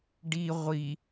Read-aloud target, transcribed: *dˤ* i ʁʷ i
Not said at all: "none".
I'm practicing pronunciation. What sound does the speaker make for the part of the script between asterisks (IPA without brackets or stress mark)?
ɖ